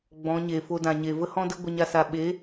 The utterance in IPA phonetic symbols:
ɡ͡bɔ̃˨˦ɲe˨ fo˧dã˨ɲe˨ və˧hɔ̃˧də˧ ɡʷə˦ɲa˦sa˧ ɓe˨˦

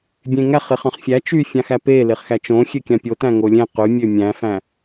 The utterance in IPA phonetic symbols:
bʲẽŋæχeχ ɑ̃χfʲæ t͡ʃyfʲɑ̃xæ pe leχxæt͡ʃõ xʲøkʲɑ̃pʲo tæ̃ŋolʲẽ qymʲø mʲæ̃fæ̃

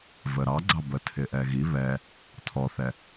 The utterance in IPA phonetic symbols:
vəɾɑɡ͡ǀɑ bətʰɪʔɛɣi βɛ | tʰɔθɛ

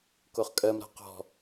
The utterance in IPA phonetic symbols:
koχkʼɜm ɾa̤qɔ̤

